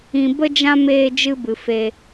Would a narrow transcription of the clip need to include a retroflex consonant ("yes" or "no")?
no